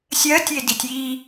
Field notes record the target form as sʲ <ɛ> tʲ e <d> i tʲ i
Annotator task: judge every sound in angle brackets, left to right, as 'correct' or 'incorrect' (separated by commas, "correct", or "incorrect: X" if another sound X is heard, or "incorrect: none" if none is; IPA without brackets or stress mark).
incorrect: ɜ, correct